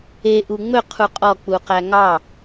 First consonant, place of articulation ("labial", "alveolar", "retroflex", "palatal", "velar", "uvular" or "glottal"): glottal